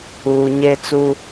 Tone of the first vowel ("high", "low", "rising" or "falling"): low